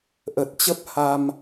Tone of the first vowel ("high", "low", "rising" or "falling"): low